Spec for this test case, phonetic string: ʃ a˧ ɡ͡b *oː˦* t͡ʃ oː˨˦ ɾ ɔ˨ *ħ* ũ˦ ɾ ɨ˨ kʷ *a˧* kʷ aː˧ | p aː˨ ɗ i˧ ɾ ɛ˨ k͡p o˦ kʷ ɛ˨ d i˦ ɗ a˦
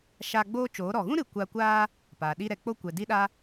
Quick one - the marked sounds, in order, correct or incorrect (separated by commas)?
correct, incorrect, correct